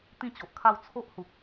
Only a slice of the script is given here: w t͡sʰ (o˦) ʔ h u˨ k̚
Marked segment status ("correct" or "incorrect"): correct